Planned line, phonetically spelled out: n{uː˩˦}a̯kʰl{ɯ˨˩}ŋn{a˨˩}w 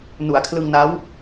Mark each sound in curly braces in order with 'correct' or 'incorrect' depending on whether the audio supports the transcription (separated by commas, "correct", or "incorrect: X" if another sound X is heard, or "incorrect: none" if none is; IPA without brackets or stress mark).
incorrect: u˩˦, incorrect: ɯ˧, incorrect: a˦˥